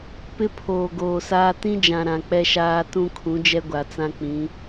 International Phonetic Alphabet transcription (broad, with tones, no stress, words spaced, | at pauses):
pɪ˦pʰoː˨ɡoː˨saː˦ tĩ˦d͡ʒã˨ ɾã˨k͡pɛ˦ʃaː˦ tũ˦kʰũ˨˦d͡ʒɛ˦ɡʷa˨ t͡sã˦k͡pĩ˨˦